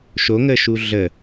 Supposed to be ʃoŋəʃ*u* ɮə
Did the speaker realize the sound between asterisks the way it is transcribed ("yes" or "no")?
yes